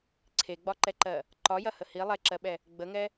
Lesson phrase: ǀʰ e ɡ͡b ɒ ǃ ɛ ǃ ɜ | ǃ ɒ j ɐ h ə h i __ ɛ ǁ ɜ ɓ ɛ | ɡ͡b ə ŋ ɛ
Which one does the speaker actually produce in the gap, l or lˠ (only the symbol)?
lˠ